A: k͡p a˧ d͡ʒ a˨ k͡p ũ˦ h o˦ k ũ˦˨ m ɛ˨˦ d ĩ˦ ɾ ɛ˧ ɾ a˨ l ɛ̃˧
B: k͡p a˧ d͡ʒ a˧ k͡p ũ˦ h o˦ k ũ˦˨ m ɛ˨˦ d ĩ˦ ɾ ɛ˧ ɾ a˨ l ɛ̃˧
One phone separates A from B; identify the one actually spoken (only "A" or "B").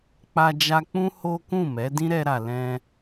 B